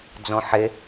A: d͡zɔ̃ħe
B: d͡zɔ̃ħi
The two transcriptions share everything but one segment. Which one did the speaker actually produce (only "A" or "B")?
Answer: A